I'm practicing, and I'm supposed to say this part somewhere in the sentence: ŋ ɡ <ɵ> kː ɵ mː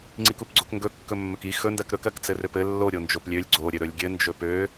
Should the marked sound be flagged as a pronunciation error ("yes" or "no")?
no